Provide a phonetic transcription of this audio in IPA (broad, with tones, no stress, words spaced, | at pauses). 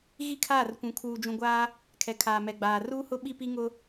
ɣi˦kʰaː˦˨r kʷũ˨kʰuː˨ d͡ʒũ˨ɡʷaː˦ | kʰɛ˨kʰaː˨mɛ˨ɡ͡baː˨ ruː˦hʊ˦ ɓi˦pi˦ ŋʊ˦